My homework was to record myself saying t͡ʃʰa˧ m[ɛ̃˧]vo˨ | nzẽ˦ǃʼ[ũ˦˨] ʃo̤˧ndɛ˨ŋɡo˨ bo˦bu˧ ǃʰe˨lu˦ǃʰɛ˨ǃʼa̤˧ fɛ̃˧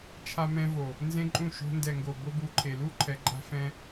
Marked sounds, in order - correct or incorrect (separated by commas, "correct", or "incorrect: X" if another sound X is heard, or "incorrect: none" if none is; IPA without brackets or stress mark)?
correct, correct